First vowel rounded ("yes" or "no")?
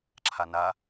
no